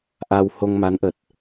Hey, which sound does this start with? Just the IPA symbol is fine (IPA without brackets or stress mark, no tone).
ʔ